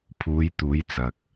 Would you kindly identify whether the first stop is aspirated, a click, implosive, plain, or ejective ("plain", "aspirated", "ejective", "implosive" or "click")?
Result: aspirated